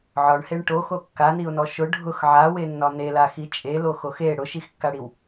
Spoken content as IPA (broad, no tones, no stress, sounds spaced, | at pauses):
ʕ ɒ ɳ h e ɳ ʈ o x o kː a n i ʊ̯ n ɔ ʃ ʊ ɖʱ ʊ x ʕ a w e nː ɒ n e l a x i t͡ʃʼ e l o x o x e ɽ ʊ ʃ i x kː a ɽ i w